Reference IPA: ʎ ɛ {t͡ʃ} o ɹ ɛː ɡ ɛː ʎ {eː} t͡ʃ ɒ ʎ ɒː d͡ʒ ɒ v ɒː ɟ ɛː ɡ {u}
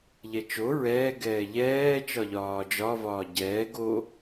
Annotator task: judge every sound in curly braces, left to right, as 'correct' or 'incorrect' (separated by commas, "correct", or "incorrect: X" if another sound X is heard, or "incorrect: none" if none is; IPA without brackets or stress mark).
correct, incorrect: ɛː, incorrect: o